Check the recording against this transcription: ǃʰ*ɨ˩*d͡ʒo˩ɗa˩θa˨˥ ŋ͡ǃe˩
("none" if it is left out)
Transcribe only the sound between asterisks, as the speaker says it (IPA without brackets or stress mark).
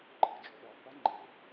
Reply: ɨ˩